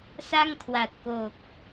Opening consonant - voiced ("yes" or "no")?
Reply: no